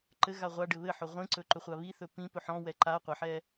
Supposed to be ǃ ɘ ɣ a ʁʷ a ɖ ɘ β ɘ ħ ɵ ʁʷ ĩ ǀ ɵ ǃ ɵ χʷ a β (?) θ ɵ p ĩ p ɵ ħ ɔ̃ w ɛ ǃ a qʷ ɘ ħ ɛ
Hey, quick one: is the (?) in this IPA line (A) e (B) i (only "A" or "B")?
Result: B